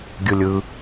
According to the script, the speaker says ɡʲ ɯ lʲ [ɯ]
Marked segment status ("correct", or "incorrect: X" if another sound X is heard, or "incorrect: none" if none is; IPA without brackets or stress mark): correct